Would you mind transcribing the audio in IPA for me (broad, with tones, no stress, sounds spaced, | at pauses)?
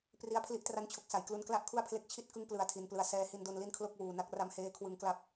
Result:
p r i˦˥ a̯ pʰ l i˦˥ ʔ t r a˦˥ n t͡ɕʰ o˨˩ k̚ s a˩˦ j k l u˧ n k l a˥˩ ʔ kʰ u˥˩ a̯ pʰ l e˦˥ k̚ t͡ɕʰ i˥˩ t̚ k ɯ˦˥ ŋ p l ɯ˧ a̯ tʰ i˧ n p l ɯ˧ a̯ s ɛː˧ h i˧ n d o˧ n l i˥˩ n kʰ l o˥˩ k̚ w uː˨˩ n a˦˥ k̚ r a˦˥ m h eː˦˥ kʰ w ɯ˦˥ ŋ k l a˥˩ p̚